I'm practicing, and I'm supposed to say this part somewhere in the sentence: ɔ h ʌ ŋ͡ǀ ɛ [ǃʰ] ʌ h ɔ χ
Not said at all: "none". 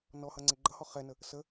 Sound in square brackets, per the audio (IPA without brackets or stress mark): ɡ͡ǃ